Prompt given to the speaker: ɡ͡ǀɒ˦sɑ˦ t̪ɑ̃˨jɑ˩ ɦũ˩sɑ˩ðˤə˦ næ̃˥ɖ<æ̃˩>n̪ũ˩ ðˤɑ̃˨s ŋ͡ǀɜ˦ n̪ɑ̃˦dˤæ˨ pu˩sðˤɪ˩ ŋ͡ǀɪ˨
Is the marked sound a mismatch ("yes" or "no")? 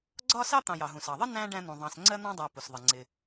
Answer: yes